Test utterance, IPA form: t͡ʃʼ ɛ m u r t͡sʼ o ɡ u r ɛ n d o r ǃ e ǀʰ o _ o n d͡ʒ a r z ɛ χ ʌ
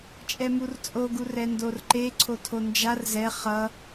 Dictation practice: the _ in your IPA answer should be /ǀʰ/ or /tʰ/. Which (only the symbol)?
tʰ